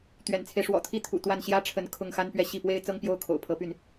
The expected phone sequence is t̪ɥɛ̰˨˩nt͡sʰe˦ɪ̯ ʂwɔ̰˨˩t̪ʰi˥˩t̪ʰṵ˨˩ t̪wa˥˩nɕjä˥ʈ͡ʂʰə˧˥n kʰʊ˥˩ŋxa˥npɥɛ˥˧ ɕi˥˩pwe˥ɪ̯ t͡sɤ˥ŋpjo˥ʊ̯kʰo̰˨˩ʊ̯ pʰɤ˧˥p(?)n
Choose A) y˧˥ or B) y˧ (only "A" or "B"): B